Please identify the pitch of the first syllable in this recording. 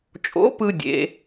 rising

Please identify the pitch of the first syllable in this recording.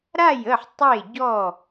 falling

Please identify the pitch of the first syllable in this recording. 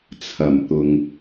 low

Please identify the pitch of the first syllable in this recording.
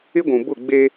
high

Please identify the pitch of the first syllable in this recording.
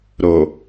low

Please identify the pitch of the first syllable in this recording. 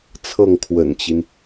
falling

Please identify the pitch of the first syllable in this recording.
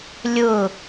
falling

